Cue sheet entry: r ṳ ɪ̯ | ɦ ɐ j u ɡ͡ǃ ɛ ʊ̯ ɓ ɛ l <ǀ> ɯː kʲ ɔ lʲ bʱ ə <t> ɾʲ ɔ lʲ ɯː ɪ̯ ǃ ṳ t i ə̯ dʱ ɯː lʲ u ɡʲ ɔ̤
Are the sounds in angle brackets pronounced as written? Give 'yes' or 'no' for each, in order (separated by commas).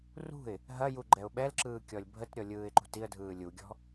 no, yes